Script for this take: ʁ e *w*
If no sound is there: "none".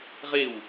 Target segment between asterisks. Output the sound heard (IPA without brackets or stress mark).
w